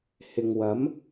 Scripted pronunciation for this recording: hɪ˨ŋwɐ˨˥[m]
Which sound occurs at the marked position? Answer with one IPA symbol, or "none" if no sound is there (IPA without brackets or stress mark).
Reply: m